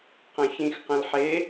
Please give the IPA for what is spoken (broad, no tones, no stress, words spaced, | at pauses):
qɐ̃çĩxqɐ̃l ħe